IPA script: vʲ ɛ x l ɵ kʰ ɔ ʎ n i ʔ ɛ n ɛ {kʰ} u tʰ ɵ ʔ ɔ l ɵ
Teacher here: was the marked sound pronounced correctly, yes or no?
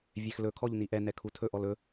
yes